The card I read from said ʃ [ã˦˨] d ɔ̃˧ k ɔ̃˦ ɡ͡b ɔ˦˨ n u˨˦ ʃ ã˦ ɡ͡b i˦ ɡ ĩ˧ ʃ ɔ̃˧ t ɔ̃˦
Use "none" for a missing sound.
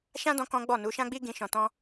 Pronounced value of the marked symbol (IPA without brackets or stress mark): ã˦